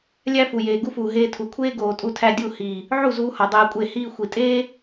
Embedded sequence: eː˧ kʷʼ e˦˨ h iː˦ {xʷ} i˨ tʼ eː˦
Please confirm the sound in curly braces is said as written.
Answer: yes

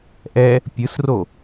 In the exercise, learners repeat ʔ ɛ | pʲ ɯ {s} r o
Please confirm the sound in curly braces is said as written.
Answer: yes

